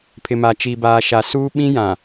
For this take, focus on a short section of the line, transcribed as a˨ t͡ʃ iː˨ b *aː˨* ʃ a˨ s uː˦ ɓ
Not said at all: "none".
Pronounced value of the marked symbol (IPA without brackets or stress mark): aː˨